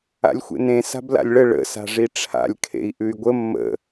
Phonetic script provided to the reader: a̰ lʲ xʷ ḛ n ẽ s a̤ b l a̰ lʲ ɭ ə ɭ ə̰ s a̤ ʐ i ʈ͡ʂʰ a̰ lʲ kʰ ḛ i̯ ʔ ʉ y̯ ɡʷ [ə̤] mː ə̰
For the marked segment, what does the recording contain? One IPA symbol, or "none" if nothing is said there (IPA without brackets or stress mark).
ə